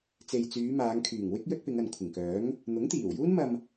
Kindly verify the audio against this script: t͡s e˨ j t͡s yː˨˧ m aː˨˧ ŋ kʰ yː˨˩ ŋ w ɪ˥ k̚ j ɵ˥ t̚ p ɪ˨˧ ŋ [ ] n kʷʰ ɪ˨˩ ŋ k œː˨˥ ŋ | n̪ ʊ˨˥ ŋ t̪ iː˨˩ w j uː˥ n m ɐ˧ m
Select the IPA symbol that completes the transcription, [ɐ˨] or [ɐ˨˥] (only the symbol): ɐ˨